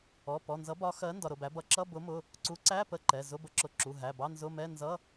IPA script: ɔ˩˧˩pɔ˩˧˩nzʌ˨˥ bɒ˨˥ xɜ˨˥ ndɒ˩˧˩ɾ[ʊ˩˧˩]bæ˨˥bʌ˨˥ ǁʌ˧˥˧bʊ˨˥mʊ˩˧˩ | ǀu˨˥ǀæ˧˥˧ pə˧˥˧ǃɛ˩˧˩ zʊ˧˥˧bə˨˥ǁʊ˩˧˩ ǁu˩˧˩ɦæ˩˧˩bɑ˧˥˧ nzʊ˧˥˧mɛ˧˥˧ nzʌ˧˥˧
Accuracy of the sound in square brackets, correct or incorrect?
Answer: correct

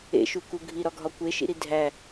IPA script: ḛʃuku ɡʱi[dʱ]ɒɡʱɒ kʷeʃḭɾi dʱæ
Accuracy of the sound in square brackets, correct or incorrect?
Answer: incorrect: ɾ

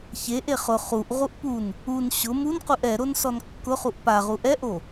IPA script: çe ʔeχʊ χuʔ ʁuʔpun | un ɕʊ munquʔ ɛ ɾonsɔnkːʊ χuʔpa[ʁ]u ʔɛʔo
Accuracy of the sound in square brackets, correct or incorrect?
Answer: correct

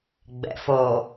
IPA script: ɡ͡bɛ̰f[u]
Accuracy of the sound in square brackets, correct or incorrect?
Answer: incorrect: o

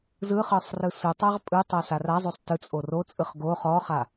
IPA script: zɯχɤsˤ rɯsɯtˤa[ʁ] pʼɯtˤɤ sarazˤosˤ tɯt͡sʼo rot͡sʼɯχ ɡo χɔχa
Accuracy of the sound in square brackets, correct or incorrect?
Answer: correct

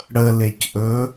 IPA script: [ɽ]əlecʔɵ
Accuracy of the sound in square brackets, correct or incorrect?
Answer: correct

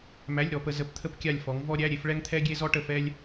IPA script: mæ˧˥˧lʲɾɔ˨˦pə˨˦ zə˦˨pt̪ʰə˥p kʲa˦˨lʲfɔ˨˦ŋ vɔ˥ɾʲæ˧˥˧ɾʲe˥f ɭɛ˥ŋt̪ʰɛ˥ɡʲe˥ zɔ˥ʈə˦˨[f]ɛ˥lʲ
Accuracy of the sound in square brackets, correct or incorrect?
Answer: correct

